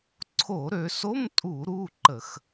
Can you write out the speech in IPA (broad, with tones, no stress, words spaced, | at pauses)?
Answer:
ǀʰo˧˩˧ɾø˩˧so˧˥˧m tʼu˧˩˧ɾu˩˧˩ ǃə˧˩˧x